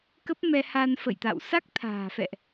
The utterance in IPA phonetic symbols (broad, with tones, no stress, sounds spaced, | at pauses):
k ə˦˥ p̚ m ɛ˧ h a˧ n f ə̰˧˨ j t̪ a̰˧˨ w s a˦˥ k̚ t̪ʰ a̤ː˨˩ f ɛ̰˧˨ ʔ